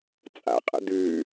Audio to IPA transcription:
t͡sʼ a̰ qʼ ə̰ d̪ ʉ

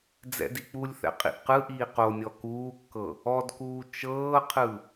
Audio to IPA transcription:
d͡z ɛ̰ d i k͡p u lʲ θ ɛ̰ qʼ ḭ ʔ q ɯ ʔ iː q o nʲ ɔ k uː kː ɤ | ɔ d k uː t͡ʃ ɤː qʰ ɯ

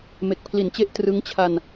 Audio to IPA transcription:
m e˨˩ k̚ pʰ l i˨˩ n t͡ɕ e˦˥ ʔ t r ɯ˦˥ ŋ t͡ɕʰ a˧ n

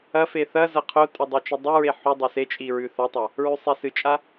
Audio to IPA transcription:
ɐ f e θ ɐ z ɐ qʰ o tʼ ɵ dˤ a t͡ʃ u dˤ ɨ ɹ e ħ u dˤ ɵ s e t͡ʃʼ i ɹ ʉ θ ɐ tˤ a | ɹ ʉ sˤ e s ɨ t͡ʃʼ a

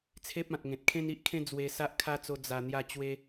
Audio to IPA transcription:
t͡sʰ e˦ p̚ ã˨ t̚ ŋ ẽ˨ t̚ kʰ ẽ˦ n i˦ ʔ kʰ ẽ˦ d͡z w e˧ s a˦ ʔ kʰ a˦ t͡s o˧ d͡z a˨˩ n̪ j a˥˧ t͡ɕ w e˦

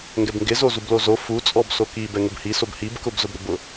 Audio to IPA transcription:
ŋ ɡ ɛ b ŋ ɡ ɪ z o z u b l o z o f u t͡sʼ ɔ b s o k i b ɛ ŋ ʊ b h i s o b h i b k ʊ b z ʊ b ɾ ʊ b ʊ

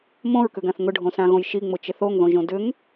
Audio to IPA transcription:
m õ ɹ k ʏ ɡ ã θ ŋ ʊ ɖʱ õ s ã ɣ õ j ʃ i ŋ͡m ʊ t͡ʃ ɪ θ o ŋ ð õ ʒ õ d ʏ ŋ

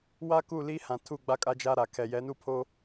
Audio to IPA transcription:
w a˦ k u˦˨ l i˦ h ã˨ tʰ u˦˨ ɡ͡b a˦ kʼ a˦ d͡ʒ a˦ ɾ a˨ kʰ ɛ˨ j ɛ˨˦ n u˦ pʰ o˦

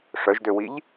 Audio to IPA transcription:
ʂ œ ʒ d ø w i ʎ

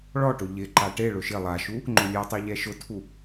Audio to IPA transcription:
ɭ ɔ ʈ ʊ ʎ ɪ ǃ a ʈ e ɭ ʊ ʃ ɪ lˠ a ʃ u | ŋ͡ǃ ʊ lʲ e tˤ e ʎ ɛ ʃ ʊ tʰ u

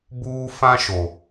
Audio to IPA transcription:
b uː˦ f ã˦ ʃ o˨

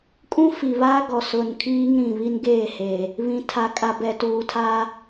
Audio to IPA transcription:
kʼ ũ˦ f i˨ β aː˦ ɡ ɔ˨ s ʊ˨ n kʰ iː˦ ŋ ɾ ĩ˨ β i˦ n ɡ eː˦˨ h eː˨ | β ĩ˨ tʰ a˨ kʼ a˨ b ɛ˨ t uː˨ tʰ aː˦

